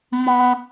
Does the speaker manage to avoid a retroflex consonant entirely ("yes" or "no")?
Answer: yes